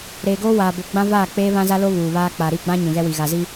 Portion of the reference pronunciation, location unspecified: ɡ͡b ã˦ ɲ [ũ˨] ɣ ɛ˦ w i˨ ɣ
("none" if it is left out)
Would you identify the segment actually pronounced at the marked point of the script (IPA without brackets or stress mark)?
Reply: ũ˨